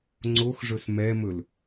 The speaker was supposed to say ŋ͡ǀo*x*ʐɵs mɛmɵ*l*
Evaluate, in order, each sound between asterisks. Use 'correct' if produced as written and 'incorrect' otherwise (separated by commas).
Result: correct, correct